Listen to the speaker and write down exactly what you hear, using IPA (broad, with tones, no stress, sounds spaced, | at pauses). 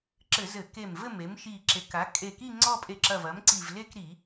ǁ ɘ˧˩˧ z ɘ˧˩˧ k e˧˩ m v ɘ˥˧ m e˩˥ m ʃ i˧˩ ǁ e˩˥ k a˩˥ kʼ e˧˩ k i˥˧ ŋ͡ǀ ɔ˥˧ pʼ e˧˩ ǁ ɐ˧˩ v ɐ˩˥ m ǀ i˧˩ v l e˥˧ k ɾ i˧˩˧